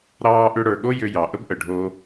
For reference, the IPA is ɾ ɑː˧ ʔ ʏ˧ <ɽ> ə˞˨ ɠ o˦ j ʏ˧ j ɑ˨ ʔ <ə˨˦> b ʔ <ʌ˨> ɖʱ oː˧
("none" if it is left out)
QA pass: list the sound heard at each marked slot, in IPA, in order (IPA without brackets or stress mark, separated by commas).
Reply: ɽ, ə˦, ə˨